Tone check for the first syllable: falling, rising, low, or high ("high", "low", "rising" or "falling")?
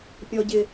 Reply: high